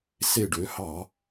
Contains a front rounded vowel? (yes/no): yes